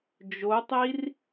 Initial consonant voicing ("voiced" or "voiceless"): voiced